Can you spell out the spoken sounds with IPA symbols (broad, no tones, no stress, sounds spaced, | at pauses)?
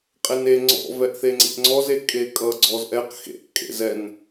qʼ e n e ŋ͡ǀ ɔ̰ v ɛ ʔ θ e ŋ͡ǀ ḛ ʔ ŋ͡ǀ ɔ z e kʼ e kʼ ʌ ɡ͡ǀ ɔ z ʔ ɛ q x ḛ ʔ kʼ ḛ z ɛ n